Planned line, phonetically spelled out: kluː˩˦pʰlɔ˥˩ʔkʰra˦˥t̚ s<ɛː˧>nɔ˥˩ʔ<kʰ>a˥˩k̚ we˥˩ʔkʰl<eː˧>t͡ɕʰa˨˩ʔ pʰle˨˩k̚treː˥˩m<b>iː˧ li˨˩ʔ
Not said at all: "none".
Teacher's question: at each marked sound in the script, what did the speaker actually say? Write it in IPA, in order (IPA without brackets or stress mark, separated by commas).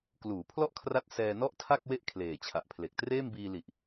ɛː˧, tʰ, eː˨˩, b